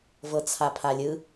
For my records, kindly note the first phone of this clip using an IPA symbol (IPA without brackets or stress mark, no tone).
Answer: v